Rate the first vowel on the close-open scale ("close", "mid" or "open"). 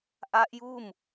open